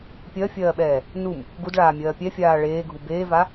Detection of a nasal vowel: absent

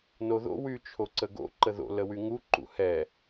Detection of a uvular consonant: absent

